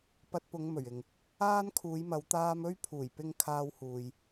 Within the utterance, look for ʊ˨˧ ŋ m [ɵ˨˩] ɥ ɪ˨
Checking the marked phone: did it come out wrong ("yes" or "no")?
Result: no